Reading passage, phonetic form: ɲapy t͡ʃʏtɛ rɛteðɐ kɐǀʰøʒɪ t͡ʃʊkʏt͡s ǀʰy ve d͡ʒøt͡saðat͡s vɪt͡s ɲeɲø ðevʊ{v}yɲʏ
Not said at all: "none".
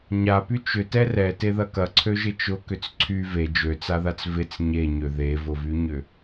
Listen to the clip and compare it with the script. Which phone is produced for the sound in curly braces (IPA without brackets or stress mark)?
v